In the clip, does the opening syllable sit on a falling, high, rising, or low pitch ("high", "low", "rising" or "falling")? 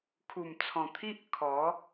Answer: low